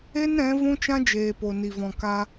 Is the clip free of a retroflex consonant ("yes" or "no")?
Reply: yes